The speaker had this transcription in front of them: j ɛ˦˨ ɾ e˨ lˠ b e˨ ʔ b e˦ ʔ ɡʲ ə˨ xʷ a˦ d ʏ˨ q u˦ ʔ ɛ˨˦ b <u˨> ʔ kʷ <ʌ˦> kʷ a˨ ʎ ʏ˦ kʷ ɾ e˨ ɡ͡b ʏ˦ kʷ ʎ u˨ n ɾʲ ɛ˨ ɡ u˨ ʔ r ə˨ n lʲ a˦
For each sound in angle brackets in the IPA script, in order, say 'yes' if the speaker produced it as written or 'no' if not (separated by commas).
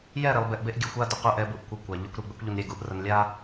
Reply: yes, yes